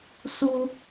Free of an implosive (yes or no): yes